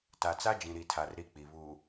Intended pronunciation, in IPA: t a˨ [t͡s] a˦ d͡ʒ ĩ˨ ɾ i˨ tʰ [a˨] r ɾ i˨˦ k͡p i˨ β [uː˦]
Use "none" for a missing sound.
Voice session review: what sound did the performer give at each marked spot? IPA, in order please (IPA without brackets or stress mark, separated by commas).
t͡s, a˨, uː˨